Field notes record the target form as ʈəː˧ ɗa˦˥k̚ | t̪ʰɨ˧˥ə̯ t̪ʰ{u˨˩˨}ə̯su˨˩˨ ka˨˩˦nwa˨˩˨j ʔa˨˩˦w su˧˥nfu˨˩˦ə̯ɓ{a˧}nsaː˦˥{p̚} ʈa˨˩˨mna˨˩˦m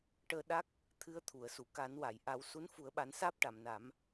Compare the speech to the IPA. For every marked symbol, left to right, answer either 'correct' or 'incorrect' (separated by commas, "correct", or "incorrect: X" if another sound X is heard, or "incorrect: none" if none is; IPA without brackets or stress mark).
correct, incorrect: a˨˩˦, correct